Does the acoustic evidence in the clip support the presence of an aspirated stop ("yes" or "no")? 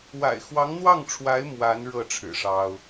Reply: yes